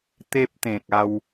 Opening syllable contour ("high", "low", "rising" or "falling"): high